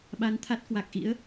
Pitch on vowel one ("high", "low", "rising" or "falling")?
rising